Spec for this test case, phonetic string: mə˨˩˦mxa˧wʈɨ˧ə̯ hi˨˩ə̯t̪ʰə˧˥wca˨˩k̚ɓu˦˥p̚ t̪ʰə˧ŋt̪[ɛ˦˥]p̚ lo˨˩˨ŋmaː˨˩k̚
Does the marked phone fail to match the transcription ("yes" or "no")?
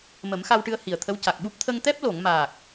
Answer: no